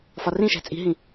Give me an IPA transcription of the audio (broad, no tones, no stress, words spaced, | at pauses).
fɒrĩʃæ̤ t͡sʼi̤ɦĩ